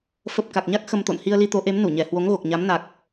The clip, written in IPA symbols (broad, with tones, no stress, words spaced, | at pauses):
fə˨˩p̚ ka˨˩k̚ɲa˦˥k̚ xə˧mt̪o̰˧˨n hi˧ə̯li˧t̪o˨˦ʔe˨˦m nu˧˩ɲɛ˨˩ hwo˨˦ŋɣo˨˩k̚ɲa˨˦m na˨˩k̚